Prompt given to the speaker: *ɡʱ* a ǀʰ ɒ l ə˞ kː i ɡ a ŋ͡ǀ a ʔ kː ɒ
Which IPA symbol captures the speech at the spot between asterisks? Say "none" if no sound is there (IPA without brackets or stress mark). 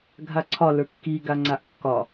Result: ɡʱ